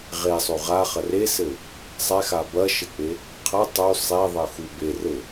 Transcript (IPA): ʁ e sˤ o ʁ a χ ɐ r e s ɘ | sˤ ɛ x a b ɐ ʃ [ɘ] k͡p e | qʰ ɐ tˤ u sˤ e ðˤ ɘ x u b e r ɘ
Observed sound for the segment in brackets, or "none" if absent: ɘ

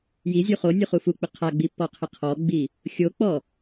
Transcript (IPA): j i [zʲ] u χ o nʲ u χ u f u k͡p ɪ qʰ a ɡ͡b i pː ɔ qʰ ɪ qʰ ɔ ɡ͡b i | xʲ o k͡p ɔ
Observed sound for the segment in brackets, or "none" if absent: zʲ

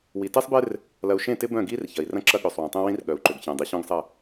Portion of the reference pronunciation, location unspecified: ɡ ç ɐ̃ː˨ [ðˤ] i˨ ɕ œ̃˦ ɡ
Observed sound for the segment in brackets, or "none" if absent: dˤ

